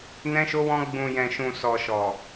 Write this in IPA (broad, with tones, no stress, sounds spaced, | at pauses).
n ɛ̃˧ ʃ o˧ w ɔ̃˧ ɡ͡b ũ˨ j ɛ̃˨ ʃ ũ˨ s ɔ˨ ʃ ɔ˨